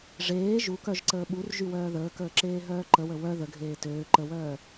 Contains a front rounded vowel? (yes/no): yes